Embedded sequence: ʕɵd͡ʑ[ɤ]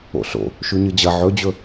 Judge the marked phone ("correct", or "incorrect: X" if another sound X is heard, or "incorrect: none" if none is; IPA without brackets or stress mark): incorrect: ɵ